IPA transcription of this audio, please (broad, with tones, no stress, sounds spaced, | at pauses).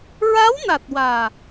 ɹ a˧˥ w n a˨˩ t̚ w aː˨˩